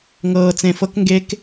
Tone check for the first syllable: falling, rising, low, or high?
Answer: low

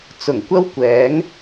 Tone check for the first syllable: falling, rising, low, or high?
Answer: low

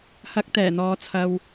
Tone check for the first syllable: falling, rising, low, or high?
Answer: rising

